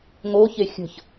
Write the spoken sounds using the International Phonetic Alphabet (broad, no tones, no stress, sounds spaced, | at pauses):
ŋ o ç e xʲ ə̤ ç